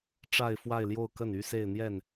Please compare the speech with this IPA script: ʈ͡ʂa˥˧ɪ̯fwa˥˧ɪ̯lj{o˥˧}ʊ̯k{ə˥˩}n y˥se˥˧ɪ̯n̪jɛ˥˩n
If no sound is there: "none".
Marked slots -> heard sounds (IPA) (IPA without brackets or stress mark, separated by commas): o˥˧, ə˥˩